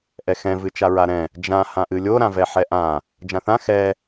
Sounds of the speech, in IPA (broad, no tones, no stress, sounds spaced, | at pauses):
ʔ ɛ x ɛ̃ v ɨ t͡ʃ a ɹ a ɾ ɛ̃ | d͡ʒ ã h ã ʔ ɨ lʲ o ɾ ã v ɛ ħ ɛ ʔ ã | d͡ʒ ã θ ã x ɛ